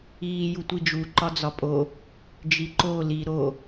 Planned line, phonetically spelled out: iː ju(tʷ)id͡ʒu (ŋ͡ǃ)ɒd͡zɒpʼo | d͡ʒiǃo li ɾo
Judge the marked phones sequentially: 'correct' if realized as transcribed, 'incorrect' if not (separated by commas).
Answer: correct, incorrect